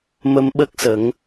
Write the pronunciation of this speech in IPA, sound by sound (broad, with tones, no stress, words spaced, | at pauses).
mə˧mɓə˦˥k̚sə˨˩˦ŋ